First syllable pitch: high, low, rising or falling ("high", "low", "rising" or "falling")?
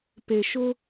low